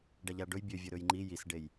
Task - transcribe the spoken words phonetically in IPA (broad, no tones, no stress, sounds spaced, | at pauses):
ɖ a ʎ a ɖ ɵ j bʲ ø vʲ ɵ ɾ ɵ j ŋ͡ǃ i j i s ɖ e j